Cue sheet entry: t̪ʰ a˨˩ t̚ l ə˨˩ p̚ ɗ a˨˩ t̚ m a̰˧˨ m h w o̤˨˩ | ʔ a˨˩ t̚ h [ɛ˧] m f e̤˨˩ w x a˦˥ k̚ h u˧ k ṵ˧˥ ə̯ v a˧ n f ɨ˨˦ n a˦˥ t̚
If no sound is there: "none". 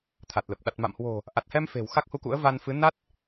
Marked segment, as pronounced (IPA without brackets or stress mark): ɛ˧